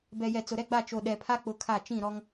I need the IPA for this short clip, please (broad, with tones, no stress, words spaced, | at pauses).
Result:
bɛ˨jɛ˨ t͡sʊ˨ɾɛ˦ɡ͡ba˦˨ t͡ʃo˨ɗɛ˨pʰa˦ k͡pʊ˦ kʰa˦˨ t͡ʃĩ˦˨ɾɔ˦ŋ